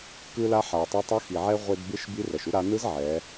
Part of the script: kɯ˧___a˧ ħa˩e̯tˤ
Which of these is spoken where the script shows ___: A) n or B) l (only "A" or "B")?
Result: B